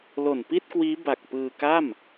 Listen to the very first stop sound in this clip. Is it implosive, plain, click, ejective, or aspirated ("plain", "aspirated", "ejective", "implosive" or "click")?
plain